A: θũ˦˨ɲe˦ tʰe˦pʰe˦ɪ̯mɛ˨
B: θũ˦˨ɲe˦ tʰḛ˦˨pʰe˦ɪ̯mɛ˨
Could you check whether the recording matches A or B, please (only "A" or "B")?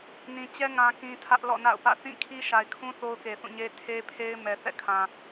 A